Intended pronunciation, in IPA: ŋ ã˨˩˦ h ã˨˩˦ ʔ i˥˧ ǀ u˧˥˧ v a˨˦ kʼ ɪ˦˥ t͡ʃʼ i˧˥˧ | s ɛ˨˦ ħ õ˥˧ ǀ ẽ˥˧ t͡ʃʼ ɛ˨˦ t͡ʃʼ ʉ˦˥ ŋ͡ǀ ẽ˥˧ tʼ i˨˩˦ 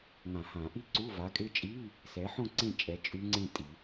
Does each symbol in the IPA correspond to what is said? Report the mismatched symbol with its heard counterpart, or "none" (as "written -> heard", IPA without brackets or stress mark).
none